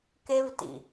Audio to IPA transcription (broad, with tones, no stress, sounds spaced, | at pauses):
k e˧ v t ḭ˨